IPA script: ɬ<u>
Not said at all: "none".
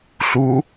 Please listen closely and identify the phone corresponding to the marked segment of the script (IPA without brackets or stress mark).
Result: u